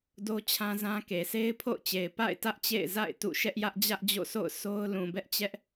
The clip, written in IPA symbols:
do˦t͡ɕʰã˦zã˦ ke˨se˦ɪ̯pʰo̰˦˨ʊ̯t͡ɕe˨ɪ̯ pa̰˦˨ɪ̯ tä˦ʔt͡ɕḛ˦˨ɪ̯ za̰˦˨ɪ̯ tṵ˦˨ ʃɛ˦ʔjä˦ʔ d͡ʑä˦ʔd͡ʑo̰˦˨sʰo̰˦˨ʊ̯ so˦ʊ̯ lũ˨bɛ˦ʔt͡ɕɛ˦ʔ

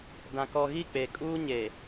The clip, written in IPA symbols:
dã˨ kɔ˨ɣi˦˨ k͡peː˨ kʼuː˦ ɲe˨

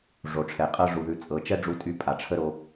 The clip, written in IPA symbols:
ʐo˨ʈ͡ʂʰɛ˨qʼɤ˦ ʐu˨ðʉ˨t͡sʼɤ˨t͡ʃɛ˦ ɖ͡ʐu˦tʼy˦ pʼa˨ʈ͡ʂʰə˦ɾo˧

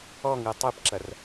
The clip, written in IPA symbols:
ɔŋɯ tˤɯpǁɐr

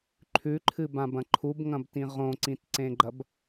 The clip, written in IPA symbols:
ǃʰʉǃʰɨbãbɐ̃ ǃʰubŋɐ̃btĩ ʁõǀĩtǀẽɡ͡ǃɐb

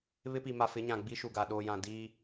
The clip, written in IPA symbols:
βɪ˦pi˨ma˨ fɪ˨˦ɲã˨ ɡ͡bi˦ʃu˨ɡa˨ ɗoː˨jã˨ diː˦

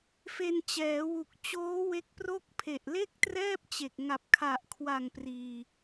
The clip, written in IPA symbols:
fe˧nt͡ɕɛː˩˦wu˨˩k̚t͡ɕoː˦˥ we˦˥k̚pro˥˩k̚ pʰe˨˩ʔle˥˩k̚trɛː˥˩p̚t͡ɕe˨˩k̚ ŋa˨˩p̚kʰa˨˩ʔkʰwa˨˩ŋ priː˧

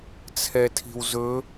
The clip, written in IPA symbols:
t͡sʰɛtʰi̤wzɵ

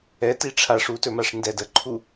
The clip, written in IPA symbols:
ɛti ʈ͡ʂʰaʂutɵmaʂ ndɛd əǃʰu

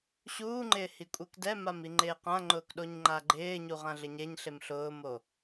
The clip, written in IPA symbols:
ɕuːŋ͡ǃɪː hikʷʼekdɛmam iŋ͡ǃɪːqãŋ͡ǃʊːk ɗoɲŋ͡ǃaɡ͡ǃɪːɲu ʁãɮɪɲeɲɬem ɬʊːmo

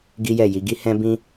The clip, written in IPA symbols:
ɡi˦jɛ˦˨ ji˨˦ ɡi˦hɛ̃˦ bĩ˦

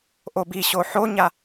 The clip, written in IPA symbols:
ʔobiɕo ħoɲa

